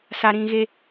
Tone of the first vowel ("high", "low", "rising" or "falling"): high